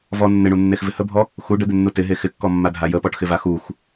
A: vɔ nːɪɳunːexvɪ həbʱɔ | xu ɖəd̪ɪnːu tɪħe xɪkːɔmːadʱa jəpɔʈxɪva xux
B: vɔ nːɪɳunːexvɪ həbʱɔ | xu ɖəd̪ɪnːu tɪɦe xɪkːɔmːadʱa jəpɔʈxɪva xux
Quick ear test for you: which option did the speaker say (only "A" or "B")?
B